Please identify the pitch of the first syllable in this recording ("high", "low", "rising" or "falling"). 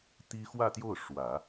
high